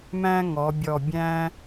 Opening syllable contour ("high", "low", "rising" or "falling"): high